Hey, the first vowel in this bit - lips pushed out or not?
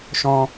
yes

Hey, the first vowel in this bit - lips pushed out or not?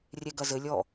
no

